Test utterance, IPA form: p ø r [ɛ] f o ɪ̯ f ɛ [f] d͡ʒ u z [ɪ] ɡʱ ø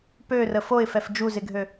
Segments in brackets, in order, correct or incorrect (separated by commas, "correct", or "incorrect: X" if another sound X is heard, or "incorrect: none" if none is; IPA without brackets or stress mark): incorrect: ə, correct, correct